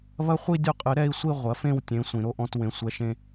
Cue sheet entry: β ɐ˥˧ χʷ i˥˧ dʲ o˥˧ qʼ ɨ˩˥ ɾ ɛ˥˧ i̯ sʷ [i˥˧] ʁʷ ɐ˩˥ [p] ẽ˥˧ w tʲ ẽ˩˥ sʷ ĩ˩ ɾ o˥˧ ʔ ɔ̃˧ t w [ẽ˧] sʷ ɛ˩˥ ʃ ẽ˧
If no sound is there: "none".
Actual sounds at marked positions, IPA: i˥˧, f, ẽ˩

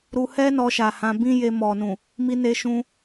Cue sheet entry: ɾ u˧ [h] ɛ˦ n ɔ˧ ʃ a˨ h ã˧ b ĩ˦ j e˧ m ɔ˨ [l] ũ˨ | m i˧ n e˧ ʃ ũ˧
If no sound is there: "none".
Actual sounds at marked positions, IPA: h, n

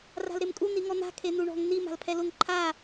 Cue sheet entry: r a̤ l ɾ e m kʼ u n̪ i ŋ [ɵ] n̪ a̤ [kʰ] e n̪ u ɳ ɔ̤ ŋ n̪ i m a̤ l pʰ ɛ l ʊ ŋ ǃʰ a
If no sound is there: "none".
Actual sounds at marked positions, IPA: ɔ, kʰ

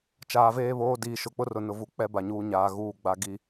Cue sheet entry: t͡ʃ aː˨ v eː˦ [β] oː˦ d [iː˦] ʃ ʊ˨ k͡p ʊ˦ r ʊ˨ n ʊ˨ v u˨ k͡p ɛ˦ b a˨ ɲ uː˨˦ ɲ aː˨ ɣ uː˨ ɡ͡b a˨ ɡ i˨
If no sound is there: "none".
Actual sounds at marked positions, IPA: β, iː˨

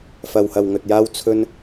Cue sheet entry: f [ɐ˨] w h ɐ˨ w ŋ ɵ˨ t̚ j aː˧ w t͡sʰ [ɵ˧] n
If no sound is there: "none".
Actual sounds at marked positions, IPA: ɐ˨, ɵ˧

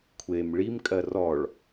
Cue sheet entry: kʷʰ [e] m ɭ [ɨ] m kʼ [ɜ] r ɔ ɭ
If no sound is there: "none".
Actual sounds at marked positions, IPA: e, i, ɜ

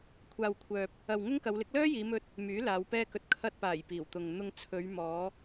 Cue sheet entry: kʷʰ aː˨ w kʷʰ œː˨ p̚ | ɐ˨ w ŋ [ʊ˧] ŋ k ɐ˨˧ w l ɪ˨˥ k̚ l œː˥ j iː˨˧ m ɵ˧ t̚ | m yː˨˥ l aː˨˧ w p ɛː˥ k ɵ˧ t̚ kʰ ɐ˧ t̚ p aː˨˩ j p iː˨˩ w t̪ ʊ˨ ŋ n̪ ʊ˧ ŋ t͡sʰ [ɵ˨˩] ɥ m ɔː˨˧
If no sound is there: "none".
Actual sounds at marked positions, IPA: ʊ˥, ɵ˨˧

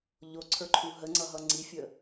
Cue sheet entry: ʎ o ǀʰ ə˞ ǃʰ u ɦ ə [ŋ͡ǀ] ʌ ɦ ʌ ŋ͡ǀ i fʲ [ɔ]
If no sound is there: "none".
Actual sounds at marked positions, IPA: ŋ͡ǀ, ə

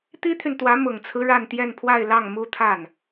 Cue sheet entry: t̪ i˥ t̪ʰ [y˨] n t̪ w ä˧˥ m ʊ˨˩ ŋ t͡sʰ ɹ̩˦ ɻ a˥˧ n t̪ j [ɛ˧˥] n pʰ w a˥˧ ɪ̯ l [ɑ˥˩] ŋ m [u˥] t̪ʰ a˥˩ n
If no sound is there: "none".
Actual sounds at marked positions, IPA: y˨, ɛ˥˧, ɑ˥˩, u˥

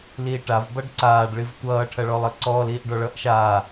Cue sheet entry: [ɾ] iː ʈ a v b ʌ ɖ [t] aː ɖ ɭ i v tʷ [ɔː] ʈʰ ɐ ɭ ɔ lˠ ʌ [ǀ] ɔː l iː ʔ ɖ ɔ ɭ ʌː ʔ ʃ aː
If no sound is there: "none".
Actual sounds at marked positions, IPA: l, ǀ, ʌː, ǀ

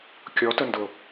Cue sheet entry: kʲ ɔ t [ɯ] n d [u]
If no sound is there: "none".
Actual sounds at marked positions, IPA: ə, ʊ

